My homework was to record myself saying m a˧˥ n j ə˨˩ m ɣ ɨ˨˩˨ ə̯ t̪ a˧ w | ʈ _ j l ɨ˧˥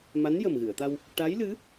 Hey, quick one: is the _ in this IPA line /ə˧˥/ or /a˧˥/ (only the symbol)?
a˧˥